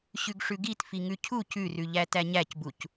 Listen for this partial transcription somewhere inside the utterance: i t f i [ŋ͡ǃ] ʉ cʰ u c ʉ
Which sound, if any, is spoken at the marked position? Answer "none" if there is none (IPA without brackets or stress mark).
ŋ